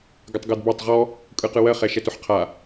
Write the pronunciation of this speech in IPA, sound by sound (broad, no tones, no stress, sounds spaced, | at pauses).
ɡ ə tˤ ɡ ɜ d b a tˤ ʁ ɔ | kʼ ɯ q ɯ w ɜ χ ɛ ʃ ɛ t ʊ ħ qʰ a